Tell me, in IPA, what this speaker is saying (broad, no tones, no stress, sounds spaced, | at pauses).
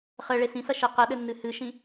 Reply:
χ ɘ ɭ e s ĩ s ɐ ʃ e q ɘ ɗ ɘ nː ɨ h ɨ ʃ ĩ